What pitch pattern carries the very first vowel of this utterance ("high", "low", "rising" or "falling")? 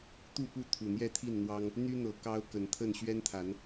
falling